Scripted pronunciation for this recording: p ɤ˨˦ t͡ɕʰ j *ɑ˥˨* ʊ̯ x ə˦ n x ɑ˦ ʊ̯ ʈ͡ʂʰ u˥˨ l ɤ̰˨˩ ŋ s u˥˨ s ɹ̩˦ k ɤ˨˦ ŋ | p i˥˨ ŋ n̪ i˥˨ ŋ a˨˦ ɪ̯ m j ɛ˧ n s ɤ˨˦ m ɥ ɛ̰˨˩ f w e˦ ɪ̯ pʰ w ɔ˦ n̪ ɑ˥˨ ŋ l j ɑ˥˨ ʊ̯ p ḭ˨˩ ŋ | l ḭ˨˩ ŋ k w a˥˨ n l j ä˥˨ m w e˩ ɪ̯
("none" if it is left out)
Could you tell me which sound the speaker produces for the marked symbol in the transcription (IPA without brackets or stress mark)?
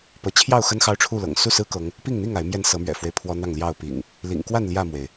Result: ɑ˥˨